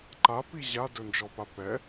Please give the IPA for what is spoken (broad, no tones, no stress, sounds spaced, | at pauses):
ǃ a p i ʑ a d ɵ n d͡ʒ ɔ p a p ɛ